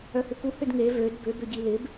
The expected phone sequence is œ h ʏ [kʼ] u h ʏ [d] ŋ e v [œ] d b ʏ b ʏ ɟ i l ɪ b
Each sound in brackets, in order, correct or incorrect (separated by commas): incorrect, correct, incorrect